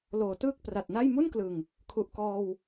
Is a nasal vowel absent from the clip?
yes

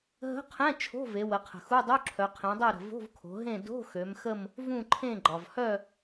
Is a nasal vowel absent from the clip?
no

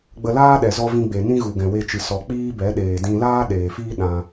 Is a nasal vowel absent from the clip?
no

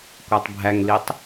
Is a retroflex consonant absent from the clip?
yes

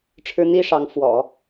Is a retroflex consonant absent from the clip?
no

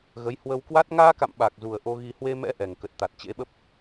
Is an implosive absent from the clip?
no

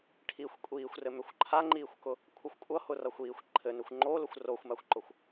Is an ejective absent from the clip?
no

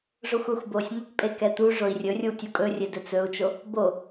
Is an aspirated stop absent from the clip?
yes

